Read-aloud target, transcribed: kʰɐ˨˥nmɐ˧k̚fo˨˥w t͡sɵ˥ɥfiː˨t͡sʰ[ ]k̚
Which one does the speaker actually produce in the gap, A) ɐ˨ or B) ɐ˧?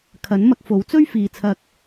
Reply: B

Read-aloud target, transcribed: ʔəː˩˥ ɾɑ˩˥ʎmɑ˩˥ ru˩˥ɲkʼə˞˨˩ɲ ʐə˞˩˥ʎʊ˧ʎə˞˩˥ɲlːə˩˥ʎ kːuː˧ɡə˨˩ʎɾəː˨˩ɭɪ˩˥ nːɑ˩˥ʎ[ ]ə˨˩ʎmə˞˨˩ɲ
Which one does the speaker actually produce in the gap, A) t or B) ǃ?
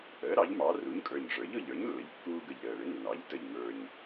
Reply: A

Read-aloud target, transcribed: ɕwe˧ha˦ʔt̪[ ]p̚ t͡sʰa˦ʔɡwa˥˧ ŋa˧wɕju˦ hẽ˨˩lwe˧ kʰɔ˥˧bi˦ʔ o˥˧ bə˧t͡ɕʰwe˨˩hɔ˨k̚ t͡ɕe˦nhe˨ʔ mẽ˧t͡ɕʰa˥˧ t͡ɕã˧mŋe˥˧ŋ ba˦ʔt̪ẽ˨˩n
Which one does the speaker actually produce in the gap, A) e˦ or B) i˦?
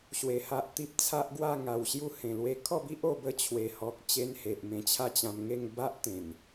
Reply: B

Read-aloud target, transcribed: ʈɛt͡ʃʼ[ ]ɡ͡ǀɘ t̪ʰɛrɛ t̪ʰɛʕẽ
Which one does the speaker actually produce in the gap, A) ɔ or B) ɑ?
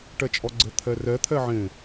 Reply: A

